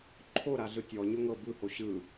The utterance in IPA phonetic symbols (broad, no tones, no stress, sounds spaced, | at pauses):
ǃʰ o ɾ a ɮ ɯ tʲ ɔ ɲ o ŋ ɤ b ɯ h o ɕ ɯ